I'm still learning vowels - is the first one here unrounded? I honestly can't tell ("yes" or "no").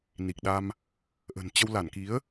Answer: yes